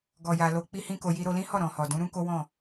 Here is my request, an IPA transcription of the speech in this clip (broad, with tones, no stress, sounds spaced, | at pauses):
ɡ ɔ˨ j a˨ l o˧ k͡p i˦ h ĩ˦ k o˧ j i˧ ɾ o˧ l ĩ˦ h ɔ˦˨ ɾ ɔ̃˨ h ɔ˨ d ũ˨˦ ɾ ũ˦ k o˦ w ɔ̃˦˨